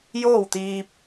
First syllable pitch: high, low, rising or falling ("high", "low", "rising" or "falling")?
falling